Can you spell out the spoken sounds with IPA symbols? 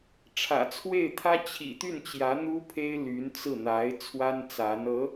ʈ͡ʂʰ ä̰˨˩ t͡sʰ w e˥˩ ɪ̯ t̪ʰ ä˥ t͡ɕʰ ḭ˨˩ t̪ y˥˩ n t͡ɕ j ä˧˥ n̪ u˥ pʰ e˥ ɪ̯ l y˧˥ n t͡s ɹ̩˥˩ n̪ a˧˥ ɪ̯ t͡sʰ w a˥ n t͡s a˧˥ n ɤ˧˥

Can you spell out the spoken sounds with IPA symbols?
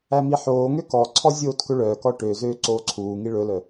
æ m i ħ oː ŋ ø k ɔ ǀʰ ɔ zʲ oː t k ɵ ɭ œː k ɔ ʈ ø z øː ǀ oː ǀʰ uː ŋ i ɭ ɵ l œ

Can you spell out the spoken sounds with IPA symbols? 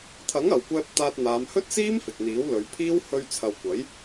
t̪ʰ ɐ˨˥ ŋ ɐ˨ w kʷ ɛː˥ p̚ t̪ aː˧ t̚ n̪ aː˨˧ m h ɵ˥ t̚ s iː˥ m f ɪ˨ k̚ n̪ iː˨˥ w l ɵ˨˧ ɥ pʰ iː˥ w h ɵ˧ ɥ t͡sʰ ɐ˨ w kʷ ɐ˨˥ j

